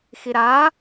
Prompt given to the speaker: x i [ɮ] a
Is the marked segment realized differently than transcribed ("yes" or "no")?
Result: yes